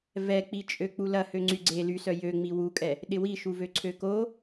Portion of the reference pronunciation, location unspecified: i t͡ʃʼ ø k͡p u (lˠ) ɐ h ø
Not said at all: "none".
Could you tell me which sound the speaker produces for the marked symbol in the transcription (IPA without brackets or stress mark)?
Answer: l